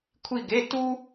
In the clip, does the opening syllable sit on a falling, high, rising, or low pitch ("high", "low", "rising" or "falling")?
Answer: falling